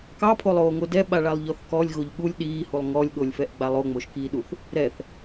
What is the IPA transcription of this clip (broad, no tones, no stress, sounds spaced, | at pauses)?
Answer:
k ɑ pʰ o lˠ oː ŋ o d ɛ ɓ a ɭ a lˠ ʎ ɔ θ k ɔ lʲ ɣ o ʎ ɠ u lʲ ɗ iː h u lˠ ŋ ɔ lʲ ɠ o lʲ f ɛ ʔ ɡ͡b a lˠ o ŋ͡m o ʃ k iː ɗ u θ | ɾ ɛ θ